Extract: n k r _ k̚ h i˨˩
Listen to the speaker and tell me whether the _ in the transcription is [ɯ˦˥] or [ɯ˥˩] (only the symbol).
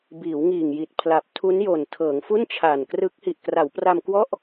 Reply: ɯ˦˥